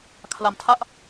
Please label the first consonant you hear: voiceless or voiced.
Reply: voiceless